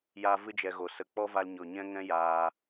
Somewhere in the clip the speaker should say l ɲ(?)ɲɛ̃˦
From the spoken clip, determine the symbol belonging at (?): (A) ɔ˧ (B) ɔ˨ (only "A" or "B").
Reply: B